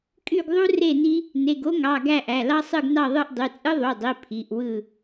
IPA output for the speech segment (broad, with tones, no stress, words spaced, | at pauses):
kʼy˦˨ɡðˤu˦re˦˨ni˦ | ne˩˧˩ɡo˦ŋɑ˩˧˩ ɡæ˦˨ʔæ˩˧˩lɑ˦ sˤɯ˦˨ɡnɑ˦˨ðˤɯ˦˨ʔ dˤy˩˧˩t͡sʼɯ˦ðˤu˩˧˩dˤi˩˧˩ pʰi˩˧˩ʔwɯ˦˨